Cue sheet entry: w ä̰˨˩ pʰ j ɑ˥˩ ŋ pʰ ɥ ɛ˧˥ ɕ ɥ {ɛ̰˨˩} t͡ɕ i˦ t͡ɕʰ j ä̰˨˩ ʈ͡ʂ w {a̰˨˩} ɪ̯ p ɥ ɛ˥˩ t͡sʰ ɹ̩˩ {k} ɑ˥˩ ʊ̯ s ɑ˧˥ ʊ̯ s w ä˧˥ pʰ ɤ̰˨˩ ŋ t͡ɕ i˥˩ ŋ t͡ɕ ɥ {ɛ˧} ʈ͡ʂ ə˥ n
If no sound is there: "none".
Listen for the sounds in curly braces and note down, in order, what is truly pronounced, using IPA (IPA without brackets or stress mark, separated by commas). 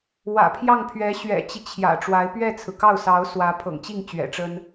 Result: ɛ̰˨˩, a˧˥, k, ɛ̰˨˩